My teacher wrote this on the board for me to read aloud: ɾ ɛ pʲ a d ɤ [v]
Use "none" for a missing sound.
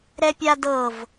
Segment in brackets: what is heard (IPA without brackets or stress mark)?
v